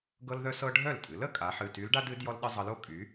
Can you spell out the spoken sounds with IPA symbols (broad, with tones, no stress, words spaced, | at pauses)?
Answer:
ɡɤ˥lðœ˥sɤ˥ ɖʱœ˥˩ltʼɨ˩˥l ə˧˥kʼa˩˥ ħɨ˩˧˩ty˧˥lɖa˥dɨ˩˥d jɔ˥lɗɨ˥ zˤɤ˧˥lo˥kʼy˩˥